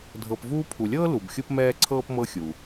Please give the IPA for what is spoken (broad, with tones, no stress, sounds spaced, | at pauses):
dʱ ɤ˨ p v uː˦ pʰ u˨ lʲ ɤː˥ l u˨ b xʲ u˥ p m ɛː˥ ǀʰ ɤː˥ p m ɤ˦ xʲ u˩